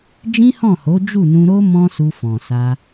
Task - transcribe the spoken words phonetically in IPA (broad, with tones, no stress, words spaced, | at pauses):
d͡ʒĩ˦hɔ̃˦˨ho˨˦ d͡ʒu˦˨nũ˧ɾo˦ mɔ̃˦su˧fɔ̃˨sa˧